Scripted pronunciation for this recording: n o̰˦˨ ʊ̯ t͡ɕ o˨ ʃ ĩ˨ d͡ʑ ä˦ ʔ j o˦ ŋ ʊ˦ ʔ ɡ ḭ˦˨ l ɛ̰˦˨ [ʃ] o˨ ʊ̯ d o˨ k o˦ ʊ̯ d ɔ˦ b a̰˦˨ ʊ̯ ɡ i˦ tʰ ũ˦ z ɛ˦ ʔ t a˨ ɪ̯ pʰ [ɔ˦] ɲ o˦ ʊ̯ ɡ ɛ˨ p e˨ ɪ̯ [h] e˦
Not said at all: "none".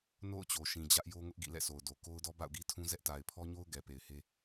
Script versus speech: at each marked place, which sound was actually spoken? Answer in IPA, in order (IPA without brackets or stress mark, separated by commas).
s, ɔ˦, h